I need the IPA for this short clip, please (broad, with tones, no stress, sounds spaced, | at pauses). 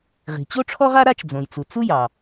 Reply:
ʁ i̤˩ t͡ɕ o˥ ʈ͡ʂʰ ɔ˥ ʁ a˥ ɾ a˥ t͡ʃ d͡z õ˩ j t͡s u˩ t͡s u˥ j ɑ˩